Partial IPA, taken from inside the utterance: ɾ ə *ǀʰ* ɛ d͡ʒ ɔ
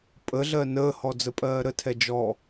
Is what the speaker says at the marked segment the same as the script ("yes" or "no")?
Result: no